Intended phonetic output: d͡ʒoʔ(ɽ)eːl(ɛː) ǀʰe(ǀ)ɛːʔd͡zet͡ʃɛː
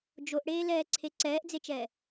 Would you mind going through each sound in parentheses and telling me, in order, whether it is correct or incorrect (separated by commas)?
correct, correct, correct